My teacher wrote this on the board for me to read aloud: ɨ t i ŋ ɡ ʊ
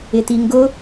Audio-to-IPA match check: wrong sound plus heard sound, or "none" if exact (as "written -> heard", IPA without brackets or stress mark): ɨ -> ɪ